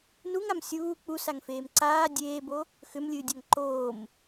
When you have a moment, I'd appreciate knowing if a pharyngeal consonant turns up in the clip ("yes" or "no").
no